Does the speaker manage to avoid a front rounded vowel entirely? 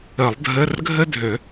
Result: no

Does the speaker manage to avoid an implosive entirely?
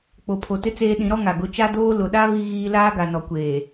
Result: no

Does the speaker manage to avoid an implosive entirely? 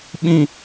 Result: no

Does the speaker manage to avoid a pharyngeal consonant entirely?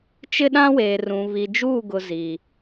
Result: yes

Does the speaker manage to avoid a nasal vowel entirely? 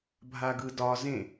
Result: no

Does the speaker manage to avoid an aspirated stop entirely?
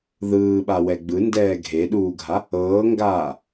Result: yes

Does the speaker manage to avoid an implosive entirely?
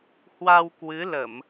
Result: yes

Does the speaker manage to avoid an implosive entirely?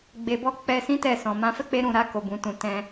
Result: yes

